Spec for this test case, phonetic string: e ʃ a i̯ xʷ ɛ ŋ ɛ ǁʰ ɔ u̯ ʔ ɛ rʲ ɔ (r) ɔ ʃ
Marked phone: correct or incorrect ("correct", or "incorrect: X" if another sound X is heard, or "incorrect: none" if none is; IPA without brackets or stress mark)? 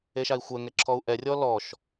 incorrect: l